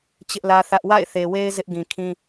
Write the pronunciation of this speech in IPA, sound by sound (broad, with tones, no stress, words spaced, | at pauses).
t͡ɕɪ˦ʔlä˦θä˦ʔ wa̰˦˨ɪ̯ θe˨we˦ɪ̯ zɪ˦ʔɡĩ˨kʰĩ˦